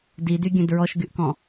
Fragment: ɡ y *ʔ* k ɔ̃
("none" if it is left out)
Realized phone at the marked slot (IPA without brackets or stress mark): ʔ